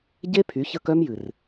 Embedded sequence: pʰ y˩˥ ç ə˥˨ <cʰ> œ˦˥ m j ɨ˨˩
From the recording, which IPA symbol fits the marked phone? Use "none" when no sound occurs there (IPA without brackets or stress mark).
k